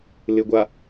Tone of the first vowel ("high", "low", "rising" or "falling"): low